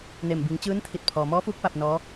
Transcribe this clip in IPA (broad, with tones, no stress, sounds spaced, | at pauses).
n e˧˩ m b i˩˧ ŋ t͡ɕ ɯː˧˥ n t̪ʰ i˧˩ t̚ pʰ ɔː˩ m ɔː˧˥ f uː˧˥ k̚ p a˧ p̚ n ɔː˧˥